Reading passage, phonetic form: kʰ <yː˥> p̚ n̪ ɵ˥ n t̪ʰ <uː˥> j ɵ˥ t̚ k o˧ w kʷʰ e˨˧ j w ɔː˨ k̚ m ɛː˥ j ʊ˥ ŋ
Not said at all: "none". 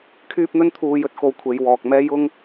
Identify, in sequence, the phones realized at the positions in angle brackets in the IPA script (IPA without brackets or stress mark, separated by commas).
yː˥, uː˧